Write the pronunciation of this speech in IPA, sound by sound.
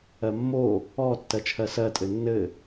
ɜ mː o | ɔ tː ɜ t͡ʃʰ ɜ s ɜ tʼ ɘ nː ɘ

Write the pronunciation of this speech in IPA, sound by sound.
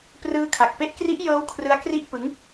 p r ɯː˦˥ kʰ a˨˩ k̚ p e˦˥ ʔ k r i˦˥ ʔ j ɤː˦˥ w kʰ r ɯ˦˥ a̯ k r i˥˩ ʔ p ɯ˦˥ ŋ

